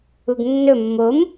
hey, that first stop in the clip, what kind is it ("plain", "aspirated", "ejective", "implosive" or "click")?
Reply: plain